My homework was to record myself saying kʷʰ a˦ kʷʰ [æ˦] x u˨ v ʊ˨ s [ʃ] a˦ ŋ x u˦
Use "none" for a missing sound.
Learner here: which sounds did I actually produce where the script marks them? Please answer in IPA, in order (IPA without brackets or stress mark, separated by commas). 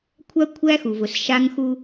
æ˦, ʃ